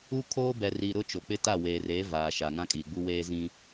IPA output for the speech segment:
u˦ kʰ oː˦ b ɛ˨ r i˨ ɾ ʊ˦ t͡ʃ o˨ k͡p ɪ˦ t a˦˨ w eː˨ r eː˨˦ v aː˨ ʃ a˨ ŋ ã˦ kʼ iː˨ ɡ͡b u˦ w eː˦ z ĩ˦

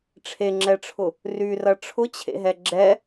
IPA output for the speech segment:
ʈ͡ʂʰ e ŋ͡ǁ ɛ ʈ͡ʂʰ ʊ | r y r ɐ ʈ͡ʂʰ ʊ t͡ɕʰ ḛ ɦ ɛ ɡ͡ǁ ɛ

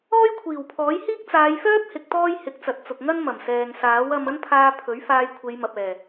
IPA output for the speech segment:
ɔː˥ j kʷʰ iː˨˩ w pʰ ɔː˨˥ j h iː˥ k̚ t͡s aː˨˧ j f œː˥ p̚ h ɪ˧ k̚ t̪ ɔː˥ j h ɪ˨˥ k̚ t͡s ɐ˨ t̚ t͡s ʊ˨ k̚ ŋ ɐ˥ n m ɐ˨˩ m s ɛː˨ ŋ s aː˨˥ w ɐ˧ m ɐ˥ n pʰ aː˧ pʰ ɵ˨˥ ɥ f aː˧ j kʷʰ e˨˧ j m ɐ˨ p̚ ɛː˨˩

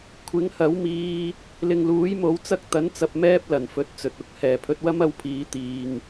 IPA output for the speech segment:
kʷʰ ɪ˨˥ ŋ h ɐ˨˥ w m iː˧ | l ɪ˨ ŋ l uː˨˥ j m o˨˥ w t͡s ɐ˥ k̚ t̪ ɐ˨˥ n t͡s ɐ˨ p̚ m ɛː˥ p̚ l ɐ˨˩ n f ɵ˨˥ t̚ t͡s ɵ˨ t̚ ʊ˧ k̚ h ɛː˨˩ pʰ ɵ˧ t̚ w ɐ˥ m ɐ˧ w pʰ iː˨˧ t̪ iː˧ ŋ

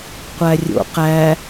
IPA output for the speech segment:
qʷ æ rʲ o̰ q æ

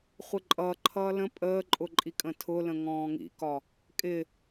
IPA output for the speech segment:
χʷ ɪ ǃʼ ʌː ǃʰ ʌː l ə̃ pʼ əː ǃʼ ʊ ǃʼ i kʼ ə̃ tʰ ʊ l ə̃ ŋ ɔ̃ː ŋ ḭ k ɒ | kʼ ɪ

